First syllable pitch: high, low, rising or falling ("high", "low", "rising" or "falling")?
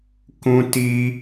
high